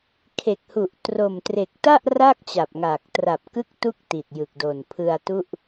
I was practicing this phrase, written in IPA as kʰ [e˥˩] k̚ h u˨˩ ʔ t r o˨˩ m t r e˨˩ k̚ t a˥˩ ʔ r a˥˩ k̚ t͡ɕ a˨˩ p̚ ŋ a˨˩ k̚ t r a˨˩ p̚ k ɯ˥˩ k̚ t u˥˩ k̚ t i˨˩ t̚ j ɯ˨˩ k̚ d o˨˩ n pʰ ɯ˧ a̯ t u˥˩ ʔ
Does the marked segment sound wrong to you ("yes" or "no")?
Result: yes